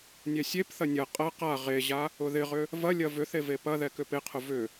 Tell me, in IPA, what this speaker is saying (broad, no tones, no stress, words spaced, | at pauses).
nʲɛsʲepθɐ nʲɐ qʼɐ qa ʁeʑa | ʊðɪʁʏ | vɐlʲɐ vʏθe vepɐðɛ kʏpɪqʰʊ vʏ